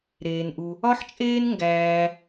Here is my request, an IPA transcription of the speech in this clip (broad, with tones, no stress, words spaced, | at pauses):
ɾeː˧nʔu˧ | ɒ˥ħt͡ʃʼeː˥n ŋɡæː˧